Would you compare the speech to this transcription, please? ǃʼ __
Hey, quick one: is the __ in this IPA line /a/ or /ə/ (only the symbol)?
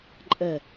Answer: ə